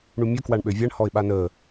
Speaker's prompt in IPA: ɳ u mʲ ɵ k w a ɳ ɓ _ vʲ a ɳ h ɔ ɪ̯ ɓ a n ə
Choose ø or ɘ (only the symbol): ø